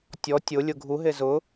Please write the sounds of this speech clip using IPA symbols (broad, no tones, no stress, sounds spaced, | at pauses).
tʲ ɔ tʲ ʊ lʲ ʊ ɡʱ u ɦ e z ʊ